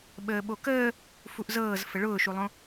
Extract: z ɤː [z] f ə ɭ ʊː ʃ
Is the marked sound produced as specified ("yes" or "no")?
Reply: yes